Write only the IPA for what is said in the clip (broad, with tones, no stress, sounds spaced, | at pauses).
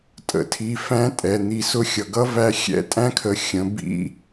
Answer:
tʼ ə̰˩˧ tʰ i˩˧ f æ̃˧˥ tʼ ɛ˩ n̪ i˩˧ s ʊ˧˥ xʲ ʌ˩ ɡ ʌ˧˥ v æ˧ xʲ ɛ̰˧˥ tʼ æ̃˥ kʰ ə˩˧ xʲ ə̃˩˧ b ḭ˧˥